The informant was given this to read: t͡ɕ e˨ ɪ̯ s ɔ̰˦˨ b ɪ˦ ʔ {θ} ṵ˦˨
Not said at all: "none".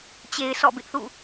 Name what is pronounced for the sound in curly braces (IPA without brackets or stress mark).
θ